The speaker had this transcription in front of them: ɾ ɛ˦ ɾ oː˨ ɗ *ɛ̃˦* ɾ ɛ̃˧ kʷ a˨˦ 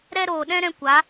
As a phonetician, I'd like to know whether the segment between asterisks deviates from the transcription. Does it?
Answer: no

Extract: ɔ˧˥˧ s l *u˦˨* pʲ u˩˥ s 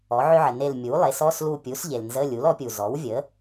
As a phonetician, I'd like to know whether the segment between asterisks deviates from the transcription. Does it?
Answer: no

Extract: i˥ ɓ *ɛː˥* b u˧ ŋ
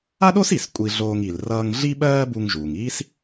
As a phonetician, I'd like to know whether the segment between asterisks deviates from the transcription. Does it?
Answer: yes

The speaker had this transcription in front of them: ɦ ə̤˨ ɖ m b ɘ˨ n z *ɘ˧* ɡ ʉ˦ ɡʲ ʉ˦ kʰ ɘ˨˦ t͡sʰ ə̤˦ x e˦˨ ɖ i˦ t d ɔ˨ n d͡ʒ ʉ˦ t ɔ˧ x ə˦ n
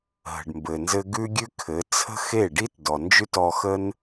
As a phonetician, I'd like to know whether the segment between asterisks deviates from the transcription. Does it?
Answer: no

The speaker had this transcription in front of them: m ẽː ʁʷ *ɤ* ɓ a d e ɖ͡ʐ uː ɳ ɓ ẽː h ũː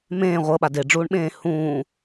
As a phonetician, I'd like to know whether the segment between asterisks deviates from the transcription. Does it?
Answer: no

